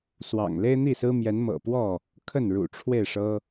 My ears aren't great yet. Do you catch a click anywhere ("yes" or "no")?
no